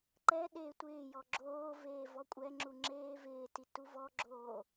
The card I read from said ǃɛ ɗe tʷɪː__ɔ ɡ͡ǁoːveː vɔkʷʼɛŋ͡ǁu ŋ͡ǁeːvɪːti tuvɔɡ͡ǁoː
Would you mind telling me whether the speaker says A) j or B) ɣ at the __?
A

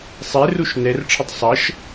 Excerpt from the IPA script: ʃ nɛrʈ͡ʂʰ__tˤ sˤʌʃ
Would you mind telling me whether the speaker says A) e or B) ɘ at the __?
B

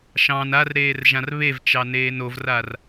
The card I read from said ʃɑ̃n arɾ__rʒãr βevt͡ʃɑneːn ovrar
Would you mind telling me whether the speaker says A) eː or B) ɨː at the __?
A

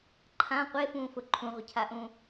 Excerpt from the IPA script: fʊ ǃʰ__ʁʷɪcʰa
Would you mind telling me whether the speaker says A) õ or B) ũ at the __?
B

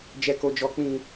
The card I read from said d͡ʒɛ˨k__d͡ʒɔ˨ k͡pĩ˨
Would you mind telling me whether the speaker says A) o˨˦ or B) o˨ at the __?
B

